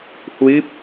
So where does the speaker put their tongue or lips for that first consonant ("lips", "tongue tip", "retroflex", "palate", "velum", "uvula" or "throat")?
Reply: throat